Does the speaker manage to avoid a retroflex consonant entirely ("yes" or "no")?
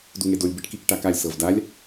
no